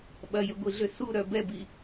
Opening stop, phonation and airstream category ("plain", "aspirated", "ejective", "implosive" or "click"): implosive